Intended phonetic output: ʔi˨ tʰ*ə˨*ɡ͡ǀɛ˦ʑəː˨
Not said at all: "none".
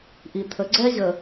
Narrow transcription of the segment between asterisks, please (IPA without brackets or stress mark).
ə˨